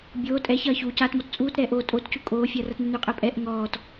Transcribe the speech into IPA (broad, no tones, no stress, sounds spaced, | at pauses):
bʲ oː tʼ ɛ ç ɐː ç u c aː t m ɔ t t͡sʼ uː t ɾ ɛː ʔ oː tʼ o t c u kʼ oː fʲ ɐː r ɐ t n ʉ n ʉ qʼ ɛ pʼ ɛ ʔ ŋ ɔː t